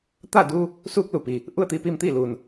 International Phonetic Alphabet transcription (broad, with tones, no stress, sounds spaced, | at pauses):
t̪ a˥˨ d uː˧ | s uː˧ k̚ l u˩ p i˩ | ʔ u˥˨ ə̯ t̪ iː˧ p iː˧ m t̪ iː˥˨ l uː˩ n